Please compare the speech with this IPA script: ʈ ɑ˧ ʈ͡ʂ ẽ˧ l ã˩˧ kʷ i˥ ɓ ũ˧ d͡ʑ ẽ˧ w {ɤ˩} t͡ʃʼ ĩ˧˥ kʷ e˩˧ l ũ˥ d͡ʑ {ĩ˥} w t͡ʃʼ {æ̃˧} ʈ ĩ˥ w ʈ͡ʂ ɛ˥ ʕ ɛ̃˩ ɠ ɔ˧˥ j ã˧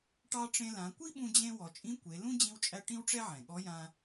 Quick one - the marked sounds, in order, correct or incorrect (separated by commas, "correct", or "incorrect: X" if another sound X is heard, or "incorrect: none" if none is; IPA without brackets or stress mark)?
incorrect: ɔ˩, incorrect: ĩ˧, incorrect: æ˧